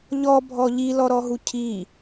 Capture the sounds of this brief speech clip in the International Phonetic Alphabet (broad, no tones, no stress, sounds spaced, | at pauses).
ʎ ɔ bʱ ɔ ʎ i l ɔ ɾ ɔ ɦ u cʰ i